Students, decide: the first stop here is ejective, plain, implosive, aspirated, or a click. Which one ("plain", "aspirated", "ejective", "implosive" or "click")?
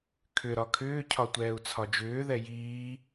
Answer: aspirated